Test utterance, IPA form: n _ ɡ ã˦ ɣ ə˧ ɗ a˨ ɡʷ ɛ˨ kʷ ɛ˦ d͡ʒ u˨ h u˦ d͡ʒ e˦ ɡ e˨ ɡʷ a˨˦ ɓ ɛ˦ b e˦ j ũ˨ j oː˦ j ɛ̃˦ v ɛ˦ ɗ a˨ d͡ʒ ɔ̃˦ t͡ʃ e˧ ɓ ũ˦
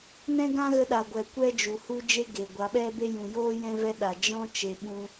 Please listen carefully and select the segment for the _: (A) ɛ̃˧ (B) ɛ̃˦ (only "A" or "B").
B